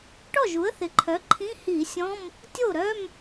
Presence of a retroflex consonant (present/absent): present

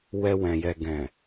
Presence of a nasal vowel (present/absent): present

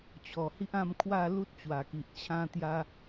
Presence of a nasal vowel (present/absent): present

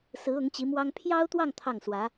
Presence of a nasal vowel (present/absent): absent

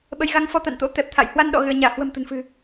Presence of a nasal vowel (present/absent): absent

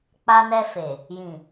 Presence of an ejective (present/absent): absent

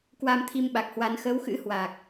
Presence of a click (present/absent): absent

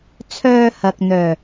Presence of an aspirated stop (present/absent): present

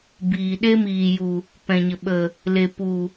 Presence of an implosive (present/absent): present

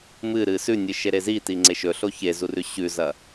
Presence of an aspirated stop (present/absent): absent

